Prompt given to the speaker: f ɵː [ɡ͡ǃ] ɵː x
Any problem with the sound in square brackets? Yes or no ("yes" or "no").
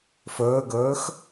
yes